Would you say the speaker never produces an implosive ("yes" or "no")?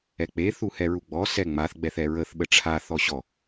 no